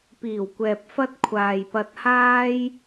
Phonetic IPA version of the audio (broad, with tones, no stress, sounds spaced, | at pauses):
p iː˨˩ w kʷ ɛː˨ p̚ f ɐ˥ t̚ kʷʰ aː˨ j p ɐ˧ t̚ h aː˥ j